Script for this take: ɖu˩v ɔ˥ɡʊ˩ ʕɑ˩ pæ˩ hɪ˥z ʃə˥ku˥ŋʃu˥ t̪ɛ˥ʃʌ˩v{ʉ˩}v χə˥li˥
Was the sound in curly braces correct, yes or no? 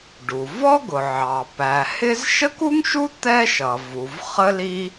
no